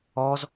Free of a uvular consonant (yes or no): yes